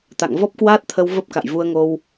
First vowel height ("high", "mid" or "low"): low